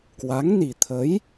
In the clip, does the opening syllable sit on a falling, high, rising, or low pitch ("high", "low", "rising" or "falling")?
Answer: rising